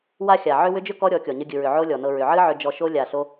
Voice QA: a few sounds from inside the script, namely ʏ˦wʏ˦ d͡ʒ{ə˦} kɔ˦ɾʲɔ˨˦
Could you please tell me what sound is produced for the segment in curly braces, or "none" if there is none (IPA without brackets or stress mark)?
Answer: ʏ˦